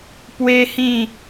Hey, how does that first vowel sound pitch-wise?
high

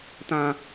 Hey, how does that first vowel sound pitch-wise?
low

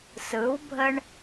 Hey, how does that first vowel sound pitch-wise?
rising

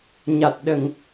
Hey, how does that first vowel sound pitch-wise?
low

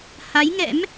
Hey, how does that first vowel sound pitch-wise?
rising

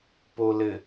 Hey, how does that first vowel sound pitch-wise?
low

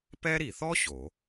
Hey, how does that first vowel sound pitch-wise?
high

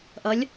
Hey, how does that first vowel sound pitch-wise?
rising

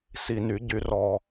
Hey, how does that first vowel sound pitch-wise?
low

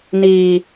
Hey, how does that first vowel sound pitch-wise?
low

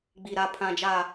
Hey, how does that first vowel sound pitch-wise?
low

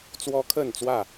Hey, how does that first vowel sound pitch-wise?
high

